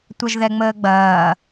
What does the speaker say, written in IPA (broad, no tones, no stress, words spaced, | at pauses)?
tʷɐʒðɛŋ͡məːɡ͡bɐː